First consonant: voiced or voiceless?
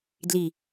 voiced